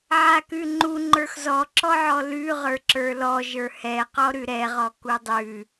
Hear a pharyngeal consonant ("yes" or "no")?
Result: yes